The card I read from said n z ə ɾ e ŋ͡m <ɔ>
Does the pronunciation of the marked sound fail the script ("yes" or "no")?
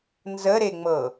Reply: yes